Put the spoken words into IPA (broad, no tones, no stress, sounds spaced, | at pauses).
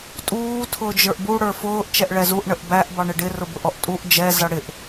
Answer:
tʼ uː tʰ ʊː d͡ʒ ə˞ ʔ b u ɽ ə˞ f ʊː ʔ t͡ʃ ɛ ʔ ɭ ɛ z u ʔ ɳ ə ʔ b æ ʔ b ɑ ɳ ɪ ɖ ɪ r ʊ b ʊ ʔ ɔ ʔ tʼ u ʔ d͡ʒ ɛ z ʌ ɽ ɪ ʔ